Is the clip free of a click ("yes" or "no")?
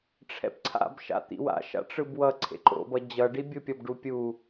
no